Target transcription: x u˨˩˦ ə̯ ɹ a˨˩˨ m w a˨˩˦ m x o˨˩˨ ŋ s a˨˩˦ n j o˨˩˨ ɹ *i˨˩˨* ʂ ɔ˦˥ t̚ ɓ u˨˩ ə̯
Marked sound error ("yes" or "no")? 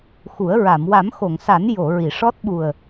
no